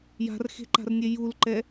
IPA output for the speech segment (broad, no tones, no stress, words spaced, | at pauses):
ja̤rxe̤ǃa̤rnʲe julǃɛ